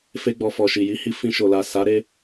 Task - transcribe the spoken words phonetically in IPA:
f e˦ ɡ͡b ɔ˧ f ɔ˨ ʃ i˨ j i˨˦ h i˧ f ĩ˧ ʃ o˨ l a˨ s a˨˦ ɾ e˧

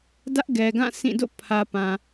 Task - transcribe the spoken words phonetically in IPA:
d ä˦ ʔ ɡ ɛ˨ ɡ ã˦˨ s ĩ˦˨ d o̰˦˨ pʰ ä˨ p ã˨

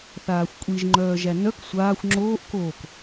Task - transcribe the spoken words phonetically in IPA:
θ aː xʷ kʷʼ i ʒ ŋ͡ǃ œː ʒ æ n œ k sʷ aː xʷ ŋ͡ǁ oː ʔ k oː k

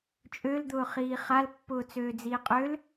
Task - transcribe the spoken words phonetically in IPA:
t͡ʃʼ ø l d̪ ʊː χ iː χ a l pː ʊː t͡s øː d͡z iː qʼ ø l

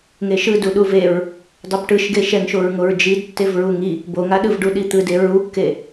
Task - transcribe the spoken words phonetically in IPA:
ŋ e ʃ ɯ d u ɗ u v e ɹ | dˤ ʌ b ʈ ɯ ʃ ɡ e ʃ ɛ ŋ ʃ o ɹ ŋ o ɹ d͡ʒ i d tː e v ɹ u ŋ i | b o ŋ a ɗ ɯ v ɖ u ɗ i t̪ ɯ d e ɹ u kː e

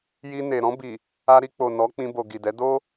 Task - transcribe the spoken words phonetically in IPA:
j i˧ n e˨ ɾ ɔ̃˧ b i˨ | a˧ ɾ i˧ k͡p o˨ n ɔ˨˦ k͡p ĩ˧ b o˨ ɡ i˨ d ɛ˨˦ d o˦

